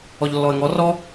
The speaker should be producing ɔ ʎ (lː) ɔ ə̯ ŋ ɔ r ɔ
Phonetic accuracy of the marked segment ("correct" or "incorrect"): correct